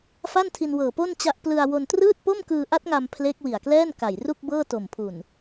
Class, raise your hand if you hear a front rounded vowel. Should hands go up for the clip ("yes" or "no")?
no